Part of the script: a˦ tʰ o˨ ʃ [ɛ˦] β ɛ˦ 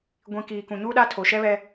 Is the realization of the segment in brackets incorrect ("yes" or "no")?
no